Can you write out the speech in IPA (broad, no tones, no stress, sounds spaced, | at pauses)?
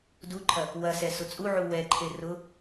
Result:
d u ǃʰ ɐ | w ɐ s ɛ s ʊ t͡sʼ u ʕ u w ɛ ǃʰ e r ʊ